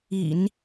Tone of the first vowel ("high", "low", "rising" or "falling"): low